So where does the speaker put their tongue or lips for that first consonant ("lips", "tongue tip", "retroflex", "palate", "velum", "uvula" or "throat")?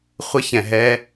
uvula